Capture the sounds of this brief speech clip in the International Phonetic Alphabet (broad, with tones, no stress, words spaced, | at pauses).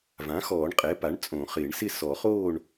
vã˩˥xɔː˨˩˦ɳqʼɛ˩˥pa˩˥ɳ t͡sʼõ˨˩˦χɪː˨˩˦ɳsɪ˥˨ sɔ˨˩˦χoː˥˨ɳ